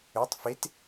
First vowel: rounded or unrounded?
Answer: rounded